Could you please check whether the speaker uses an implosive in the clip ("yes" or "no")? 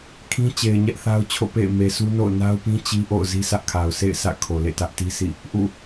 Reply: no